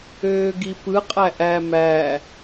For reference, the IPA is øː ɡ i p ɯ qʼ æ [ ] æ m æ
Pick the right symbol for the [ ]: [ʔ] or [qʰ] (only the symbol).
ʔ